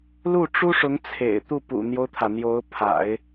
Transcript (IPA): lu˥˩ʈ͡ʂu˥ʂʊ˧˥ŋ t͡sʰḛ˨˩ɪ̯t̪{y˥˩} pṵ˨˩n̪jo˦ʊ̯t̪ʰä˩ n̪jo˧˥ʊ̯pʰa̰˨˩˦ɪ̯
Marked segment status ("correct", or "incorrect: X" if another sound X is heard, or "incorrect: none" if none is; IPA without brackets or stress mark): incorrect: u˥˩